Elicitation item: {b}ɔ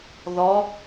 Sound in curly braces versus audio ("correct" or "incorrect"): incorrect